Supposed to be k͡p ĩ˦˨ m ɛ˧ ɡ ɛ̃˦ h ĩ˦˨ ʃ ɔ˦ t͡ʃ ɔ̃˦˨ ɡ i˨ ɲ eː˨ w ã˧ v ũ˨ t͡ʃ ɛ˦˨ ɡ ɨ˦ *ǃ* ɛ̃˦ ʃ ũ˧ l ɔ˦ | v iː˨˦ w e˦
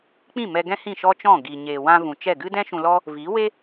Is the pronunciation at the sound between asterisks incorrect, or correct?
incorrect